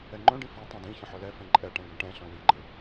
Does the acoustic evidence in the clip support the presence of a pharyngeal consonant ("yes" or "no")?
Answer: yes